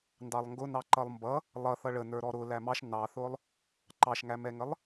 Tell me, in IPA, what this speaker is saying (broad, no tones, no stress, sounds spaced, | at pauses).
n d ɑ lˠ ŋ ɡ ʊ n ɑ ǃ ʌ lˠ m b ʌ | lˠ ʌ θ ʌ ɭ ə n ə˞ ɾ ɔ ɾ ʊ l æ m ɑ ʃ n ɑ θ ʊ lˠ | ǃ ɑ ʃ ŋ æ m ɛ ŋ ə lˠ